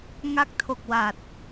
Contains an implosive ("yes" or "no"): no